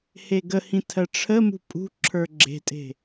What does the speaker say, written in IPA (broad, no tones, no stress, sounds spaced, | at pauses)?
h e ɡ ə h ĩ tʰ ɜ ʈ͡ʂʰ ə m ṳ pʼ ṳ ǁʰ ə˞ ɡ͡ǁ e̤ tʼ e̤